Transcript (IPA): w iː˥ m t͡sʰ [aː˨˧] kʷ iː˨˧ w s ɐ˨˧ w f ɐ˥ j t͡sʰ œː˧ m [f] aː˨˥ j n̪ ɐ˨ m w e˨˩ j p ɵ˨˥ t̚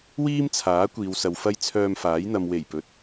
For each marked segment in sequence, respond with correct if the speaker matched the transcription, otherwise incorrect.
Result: incorrect: aː˨˥, correct

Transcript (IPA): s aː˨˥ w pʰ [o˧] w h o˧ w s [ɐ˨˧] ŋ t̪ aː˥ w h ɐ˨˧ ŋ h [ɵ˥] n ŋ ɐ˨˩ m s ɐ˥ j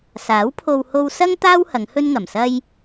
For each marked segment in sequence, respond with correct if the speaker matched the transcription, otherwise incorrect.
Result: correct, incorrect: ɐ˥, correct

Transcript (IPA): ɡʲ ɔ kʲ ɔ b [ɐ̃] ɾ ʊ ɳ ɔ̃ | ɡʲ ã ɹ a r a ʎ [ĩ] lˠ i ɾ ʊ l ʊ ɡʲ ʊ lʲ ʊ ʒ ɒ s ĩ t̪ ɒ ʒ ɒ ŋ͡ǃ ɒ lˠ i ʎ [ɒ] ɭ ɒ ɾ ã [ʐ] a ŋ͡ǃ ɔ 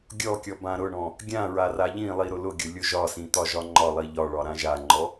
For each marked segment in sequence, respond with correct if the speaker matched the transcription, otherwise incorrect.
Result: incorrect: ã, correct, correct, incorrect: ʒ

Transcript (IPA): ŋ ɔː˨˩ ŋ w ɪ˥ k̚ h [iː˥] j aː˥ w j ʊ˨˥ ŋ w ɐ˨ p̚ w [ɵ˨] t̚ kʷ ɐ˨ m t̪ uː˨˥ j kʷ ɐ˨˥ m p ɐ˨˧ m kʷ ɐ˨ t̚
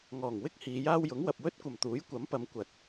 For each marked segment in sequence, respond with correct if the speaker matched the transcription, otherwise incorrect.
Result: incorrect: iː˨˧, incorrect: ɵ˥

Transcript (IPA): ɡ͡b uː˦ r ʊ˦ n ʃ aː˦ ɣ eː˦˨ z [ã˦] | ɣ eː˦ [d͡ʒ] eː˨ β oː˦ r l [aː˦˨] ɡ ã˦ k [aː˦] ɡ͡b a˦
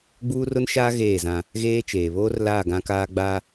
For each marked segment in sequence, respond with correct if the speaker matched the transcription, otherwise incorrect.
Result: correct, incorrect: t͡ʃ, correct, correct

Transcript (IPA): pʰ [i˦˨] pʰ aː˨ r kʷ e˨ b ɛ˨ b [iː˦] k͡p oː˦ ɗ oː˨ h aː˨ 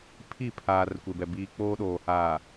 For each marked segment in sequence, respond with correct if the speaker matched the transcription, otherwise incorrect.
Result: correct, correct

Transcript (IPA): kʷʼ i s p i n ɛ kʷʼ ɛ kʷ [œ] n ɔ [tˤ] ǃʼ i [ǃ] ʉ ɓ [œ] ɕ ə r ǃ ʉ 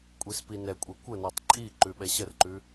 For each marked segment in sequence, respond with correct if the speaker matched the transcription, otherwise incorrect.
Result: incorrect: ə, correct, correct, incorrect: ɛ

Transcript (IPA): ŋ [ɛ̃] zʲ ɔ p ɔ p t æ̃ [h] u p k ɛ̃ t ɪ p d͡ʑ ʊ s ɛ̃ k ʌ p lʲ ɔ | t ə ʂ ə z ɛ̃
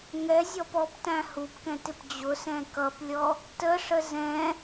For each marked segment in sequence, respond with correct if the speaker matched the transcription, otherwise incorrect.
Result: incorrect: ɛ, correct

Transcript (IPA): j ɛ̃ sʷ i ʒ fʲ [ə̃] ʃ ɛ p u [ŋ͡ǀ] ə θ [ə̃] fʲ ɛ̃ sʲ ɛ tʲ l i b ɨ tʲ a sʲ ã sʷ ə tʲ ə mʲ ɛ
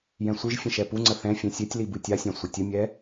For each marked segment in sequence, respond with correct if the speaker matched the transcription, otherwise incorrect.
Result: correct, correct, incorrect: ɛ̃

